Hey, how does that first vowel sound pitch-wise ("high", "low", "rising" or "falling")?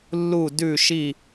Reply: falling